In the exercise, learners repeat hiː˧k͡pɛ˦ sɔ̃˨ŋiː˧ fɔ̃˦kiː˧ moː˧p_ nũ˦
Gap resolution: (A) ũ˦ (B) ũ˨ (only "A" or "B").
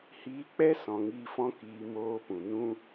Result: B